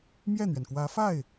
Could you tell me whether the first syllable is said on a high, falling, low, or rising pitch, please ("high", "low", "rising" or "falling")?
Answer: falling